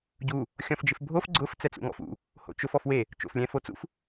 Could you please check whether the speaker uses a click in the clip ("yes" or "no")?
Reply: yes